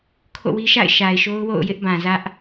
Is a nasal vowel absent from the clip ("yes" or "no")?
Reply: no